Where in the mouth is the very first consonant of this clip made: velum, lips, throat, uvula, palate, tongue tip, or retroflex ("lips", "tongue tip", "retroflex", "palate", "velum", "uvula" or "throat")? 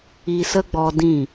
tongue tip